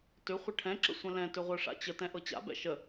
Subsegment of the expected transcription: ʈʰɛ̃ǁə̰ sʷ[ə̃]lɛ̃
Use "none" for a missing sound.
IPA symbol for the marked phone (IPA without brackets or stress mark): ə̃